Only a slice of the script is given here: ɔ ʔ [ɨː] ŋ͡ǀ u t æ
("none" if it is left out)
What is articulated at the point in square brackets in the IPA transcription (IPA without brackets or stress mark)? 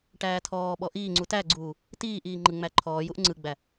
iː